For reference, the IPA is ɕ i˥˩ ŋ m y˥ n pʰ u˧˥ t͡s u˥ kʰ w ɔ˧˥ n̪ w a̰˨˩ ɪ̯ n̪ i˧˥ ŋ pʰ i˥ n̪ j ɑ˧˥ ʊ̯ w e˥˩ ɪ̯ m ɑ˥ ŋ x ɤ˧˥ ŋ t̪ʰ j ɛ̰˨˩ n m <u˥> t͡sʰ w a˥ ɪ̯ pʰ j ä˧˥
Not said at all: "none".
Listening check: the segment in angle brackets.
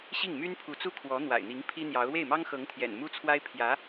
u˥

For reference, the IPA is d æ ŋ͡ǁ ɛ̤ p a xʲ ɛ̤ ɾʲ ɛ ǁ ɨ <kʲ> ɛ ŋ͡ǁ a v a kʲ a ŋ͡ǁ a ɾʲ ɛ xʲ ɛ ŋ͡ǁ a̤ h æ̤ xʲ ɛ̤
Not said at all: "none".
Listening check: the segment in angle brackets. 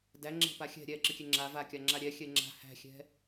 kʲ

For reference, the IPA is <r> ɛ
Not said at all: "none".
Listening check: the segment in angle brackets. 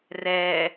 r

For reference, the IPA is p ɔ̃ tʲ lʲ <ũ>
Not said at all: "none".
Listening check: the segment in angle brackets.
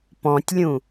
ũ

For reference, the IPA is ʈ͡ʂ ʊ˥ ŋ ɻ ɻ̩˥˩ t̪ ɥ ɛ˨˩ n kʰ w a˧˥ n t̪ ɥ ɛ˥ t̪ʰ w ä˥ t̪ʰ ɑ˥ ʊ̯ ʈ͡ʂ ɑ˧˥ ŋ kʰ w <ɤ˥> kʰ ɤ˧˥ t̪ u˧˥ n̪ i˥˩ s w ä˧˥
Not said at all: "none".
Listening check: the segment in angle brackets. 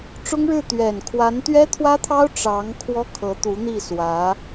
ɔ˥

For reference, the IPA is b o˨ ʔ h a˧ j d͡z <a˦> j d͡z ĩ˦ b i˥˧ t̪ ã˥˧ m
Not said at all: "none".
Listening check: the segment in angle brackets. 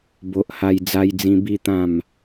a˦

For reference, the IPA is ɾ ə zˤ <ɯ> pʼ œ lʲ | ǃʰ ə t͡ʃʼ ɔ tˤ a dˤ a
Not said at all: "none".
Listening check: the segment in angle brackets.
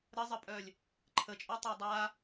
ə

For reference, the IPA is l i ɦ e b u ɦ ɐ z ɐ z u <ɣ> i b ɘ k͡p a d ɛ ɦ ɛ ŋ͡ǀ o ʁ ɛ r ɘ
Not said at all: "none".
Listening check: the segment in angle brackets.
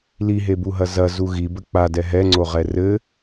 ɣ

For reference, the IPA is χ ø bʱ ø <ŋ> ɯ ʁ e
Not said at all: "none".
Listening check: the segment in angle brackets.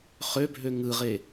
ŋ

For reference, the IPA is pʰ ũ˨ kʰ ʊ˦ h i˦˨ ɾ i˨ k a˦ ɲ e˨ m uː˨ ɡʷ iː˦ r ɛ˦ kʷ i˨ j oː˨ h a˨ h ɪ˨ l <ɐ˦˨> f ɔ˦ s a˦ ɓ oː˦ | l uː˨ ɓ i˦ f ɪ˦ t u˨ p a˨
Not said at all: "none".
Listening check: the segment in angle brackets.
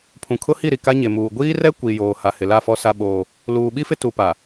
a˦˨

